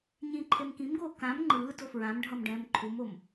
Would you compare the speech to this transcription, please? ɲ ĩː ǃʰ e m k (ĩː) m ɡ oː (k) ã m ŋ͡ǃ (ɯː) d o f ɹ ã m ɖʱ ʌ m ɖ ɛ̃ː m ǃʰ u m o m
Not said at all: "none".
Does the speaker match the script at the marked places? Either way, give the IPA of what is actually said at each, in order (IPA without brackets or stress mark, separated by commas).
ĩ, k, ɯː